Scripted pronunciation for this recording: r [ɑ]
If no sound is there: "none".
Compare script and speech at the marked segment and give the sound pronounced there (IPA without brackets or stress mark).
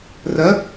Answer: ɐ